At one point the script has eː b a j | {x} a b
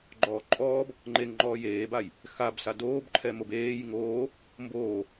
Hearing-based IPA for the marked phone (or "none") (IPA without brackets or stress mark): x